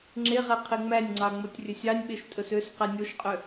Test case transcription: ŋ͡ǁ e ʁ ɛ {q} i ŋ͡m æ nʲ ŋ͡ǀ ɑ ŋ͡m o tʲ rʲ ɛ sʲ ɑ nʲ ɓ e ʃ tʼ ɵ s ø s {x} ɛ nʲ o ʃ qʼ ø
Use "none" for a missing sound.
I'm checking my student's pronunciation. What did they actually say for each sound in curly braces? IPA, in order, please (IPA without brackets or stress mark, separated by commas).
qʰ, q